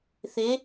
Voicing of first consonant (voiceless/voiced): voiceless